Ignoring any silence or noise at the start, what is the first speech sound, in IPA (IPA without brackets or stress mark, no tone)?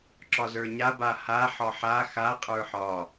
ǁ